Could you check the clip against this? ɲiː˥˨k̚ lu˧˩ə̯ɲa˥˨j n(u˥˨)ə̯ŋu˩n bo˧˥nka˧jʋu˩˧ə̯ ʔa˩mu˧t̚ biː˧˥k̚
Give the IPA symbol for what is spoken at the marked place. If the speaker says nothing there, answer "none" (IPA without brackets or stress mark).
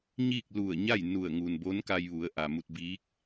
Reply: u˧˩